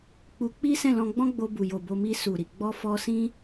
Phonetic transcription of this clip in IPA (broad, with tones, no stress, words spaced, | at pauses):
k͡pu˧k͡pi˦ sɛ̃˦˨lɔ̃˧ɡ͡bɔ̃˦ ɡ͡bo˧bu˨jo˨ bo˧mi˧ su˨ɾi˨ ɡ͡bɔ˧fɔ˧ sĩ˦